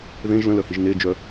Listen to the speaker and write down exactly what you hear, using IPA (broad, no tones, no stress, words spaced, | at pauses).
ðẽʒ lə̃lœhiʒ ned͡ʒœ